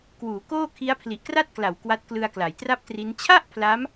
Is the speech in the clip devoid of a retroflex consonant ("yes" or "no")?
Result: yes